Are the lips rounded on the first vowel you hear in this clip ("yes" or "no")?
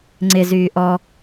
no